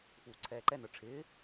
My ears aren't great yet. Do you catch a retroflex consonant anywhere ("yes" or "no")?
yes